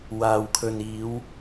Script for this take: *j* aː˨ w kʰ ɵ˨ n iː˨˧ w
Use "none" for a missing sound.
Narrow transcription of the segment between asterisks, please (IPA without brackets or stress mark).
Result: w